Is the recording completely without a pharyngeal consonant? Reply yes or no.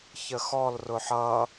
no